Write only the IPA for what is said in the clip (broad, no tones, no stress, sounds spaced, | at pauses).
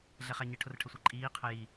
ɮ ɛ χ æ ɲ ɪ ʈʰ ʊ r ʈʰ ə sʷ ɛ ǃʼ iː qʰ ə j i